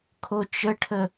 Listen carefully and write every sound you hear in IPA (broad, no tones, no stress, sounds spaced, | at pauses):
kʰ o t͡ʃ ə ʈʰ ə